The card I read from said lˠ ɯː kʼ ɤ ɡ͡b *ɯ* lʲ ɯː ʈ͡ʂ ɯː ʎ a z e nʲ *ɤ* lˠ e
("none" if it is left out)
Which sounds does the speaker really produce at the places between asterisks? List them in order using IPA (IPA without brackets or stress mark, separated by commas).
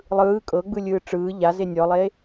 ɯ, ɔ